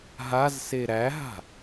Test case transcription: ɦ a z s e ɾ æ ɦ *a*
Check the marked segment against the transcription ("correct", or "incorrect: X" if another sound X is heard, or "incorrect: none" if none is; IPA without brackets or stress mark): incorrect: a̤